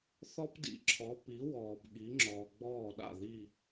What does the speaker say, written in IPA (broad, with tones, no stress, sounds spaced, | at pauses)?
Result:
θ ɔ˥ p d ḭ˩˥ ǁʰ ɔ˩˥ p i˩˥ w ɔː˩ b ɠ i˩˥ ŋ͡ǁ ɔ˩ ɡ͡b ɔː˥˩ ɗ a̰˥˩ ð i˥˩